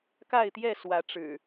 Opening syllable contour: falling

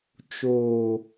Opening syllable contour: low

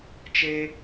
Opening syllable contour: high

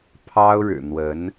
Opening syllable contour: high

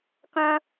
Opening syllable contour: high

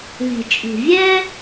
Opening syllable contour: low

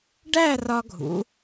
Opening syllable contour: falling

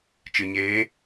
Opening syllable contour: low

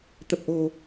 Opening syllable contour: low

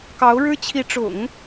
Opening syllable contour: rising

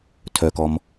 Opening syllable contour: low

